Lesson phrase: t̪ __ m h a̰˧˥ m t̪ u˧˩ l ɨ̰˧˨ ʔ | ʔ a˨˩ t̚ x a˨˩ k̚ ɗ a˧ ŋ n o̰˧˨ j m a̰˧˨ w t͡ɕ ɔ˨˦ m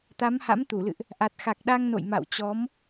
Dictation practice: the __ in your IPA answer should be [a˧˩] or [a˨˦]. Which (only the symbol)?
a˨˦